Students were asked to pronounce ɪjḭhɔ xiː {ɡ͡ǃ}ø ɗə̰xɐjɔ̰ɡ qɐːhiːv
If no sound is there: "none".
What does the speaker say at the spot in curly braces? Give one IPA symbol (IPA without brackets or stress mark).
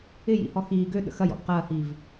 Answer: ɡ